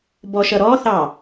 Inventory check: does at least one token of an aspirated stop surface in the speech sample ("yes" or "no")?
no